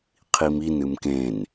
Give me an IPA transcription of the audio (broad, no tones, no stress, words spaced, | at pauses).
qʰimin ɨmkẽn